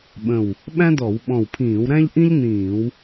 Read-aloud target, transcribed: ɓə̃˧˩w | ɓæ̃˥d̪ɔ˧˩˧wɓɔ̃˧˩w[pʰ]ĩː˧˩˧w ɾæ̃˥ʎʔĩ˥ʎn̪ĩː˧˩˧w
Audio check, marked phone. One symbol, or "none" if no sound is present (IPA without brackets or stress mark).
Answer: pʰ